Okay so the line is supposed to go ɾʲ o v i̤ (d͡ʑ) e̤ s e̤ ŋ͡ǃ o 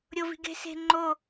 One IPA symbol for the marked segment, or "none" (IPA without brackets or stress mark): ɡ